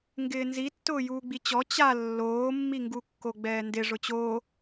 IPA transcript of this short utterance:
ŋ ɡ ɪː n z i tː ʊː j uː ɡ͡b i t͡ɕ ɔ t͡ɕ a lː oː mː i ŋ ɡ u kː o ɡ͡b ɛː n d ɪ ʐ ʊ t͡ɕ oː

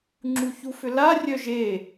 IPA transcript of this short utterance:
ŋ͡ǁ u ç u f ʏ l a rʲ œ ʒ e

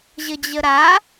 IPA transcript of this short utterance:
ʑ ə d͡ʑ ə ɾ a

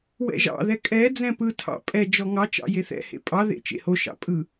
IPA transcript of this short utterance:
w ɛ̰ ʒ ɑ̰ ð ɛ kʼ ɛ d͡z ɛ̃ p ɯ tʰ ɑ̰ pʼ ɛ d͡ʒ ɔ ŋ ɑ t͡ʃ ɑ̰ j e θ ɛ̰ h ḛ pʼ ɑ ð ḛ t͡ʃ ḛ h o ʃ ɑ̰ pʼ ɯ

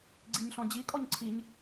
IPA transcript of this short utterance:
ɡ͡ǀ i ɲ ɬ ɔ̃ d͡ʑ i kʼ ɔ ɲ ǀʰ i ɲ

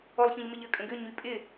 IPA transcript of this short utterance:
ɔ lˠ ç ə̃ ʎ m ɪ ʎ ə kʼ ə̃ ɡ ʏ ɲ y pʼ ɪ

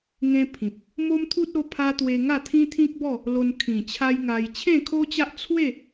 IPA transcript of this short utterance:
ŋ ẽ˦ pʰ ĩ˨ p̚ | m o˦ m t̪ʰ u˦ t̚ o˧ pʰ a˧ t̪ w e˧ ŋ a˥˧ t̪ʰ ĩ˦ t̪ʰ ĩ˦ k̚ b ɔ˥˧ | l o˧ n kʰ ĩ˨˩ t͡ɕʰ a˦ j ŋ a˧ j t͡ɕʰ ẽ˥˧ kʰ o˦ t͡ɕ a˦ ʔ t͡sʰ w e˥˧

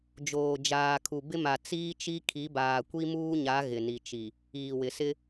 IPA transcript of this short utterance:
d͡ʒ oː˨ d͡ʒ aː˨ kʰ u˨ b ɪ˦ m a˨ t͡s iː˦ t͡ʃ i˦ kʰ i˨˦ b aː˨ kʷ i˦ m uː˦ ɲ a˨˦ ɣ ɪ˨ n i˨ t͡ʃ i˨ | iː˨ w ɪ˨ s ɪ˦

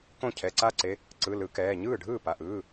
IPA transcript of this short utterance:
k õ˥˩ cʰ ɛ˩˧˩ ǀ a˦ ǀ e˩˧˩ | ǀ ɯ˩˧˩ l ɯ˨˦ k ɛː˩˧˩ ɲ ɯː˥˩ ɖʱ ɯː˥˩ p a˩˧˩ ʔ ɯː˩˧˩

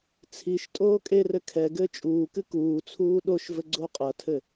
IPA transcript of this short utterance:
t͡sʰ i ʃ tʼ oː kʼ e r ɘ kʰ ɛ ɡ ɘː t͡ʃʼ uː k ɨ k uː t͡sʰ uː ɗ o ʃ v ɘ ɡ͡ǀ o qʼ ɐ tʰ ɘ

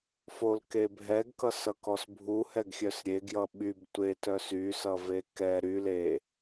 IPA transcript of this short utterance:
f o l k e bʱ ɛ ɡ k ʌ s ʌ k ɔ s bʱ u h ɛ ɡ xʲ œ s ɾʲ e ɡ j ʌ ɓ y b tʷ e t œ s y s ʌ v e k ɛ ɾ y l e

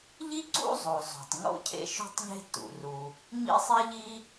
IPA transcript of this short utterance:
ʎ i˥ ǀ ṵ˥ zˤ o˩ zˤ o̤˩ tˤ ŋ o̰˥ cʰ ḛ˥ ʃ o̤˥ tˤ ʎ e̤˥ t ṵ˩ r u˩ | ɲ ḭ˥ sˤ i˥ ʎ i˥

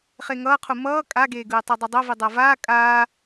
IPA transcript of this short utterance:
χ e ŋ ʌː qʰ u m ʌː kʼ a ɡ eː ɡ ɯː tˤ e dˤ ʌ dˤ o v i dˤ a v aː kʼ aː

